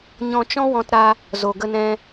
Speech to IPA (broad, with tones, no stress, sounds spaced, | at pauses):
ɲ ɔ̃˧ t͡ʃ ɔ̃˦ w ɔ̃˧ t ɾ a˧ | z o˨ ɡ ə˧ n ɛ̃˧